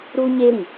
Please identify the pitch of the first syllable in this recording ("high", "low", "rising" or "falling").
high